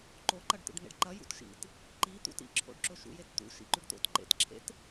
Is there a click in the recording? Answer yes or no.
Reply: yes